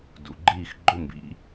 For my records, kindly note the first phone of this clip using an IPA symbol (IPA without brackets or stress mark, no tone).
d